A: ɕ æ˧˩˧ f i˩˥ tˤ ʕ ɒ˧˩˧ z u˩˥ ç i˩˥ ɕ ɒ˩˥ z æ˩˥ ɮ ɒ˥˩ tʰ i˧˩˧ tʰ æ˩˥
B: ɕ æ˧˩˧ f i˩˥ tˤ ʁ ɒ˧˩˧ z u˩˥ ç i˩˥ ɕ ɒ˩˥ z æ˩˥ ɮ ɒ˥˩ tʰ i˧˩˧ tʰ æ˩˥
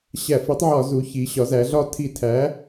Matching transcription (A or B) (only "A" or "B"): A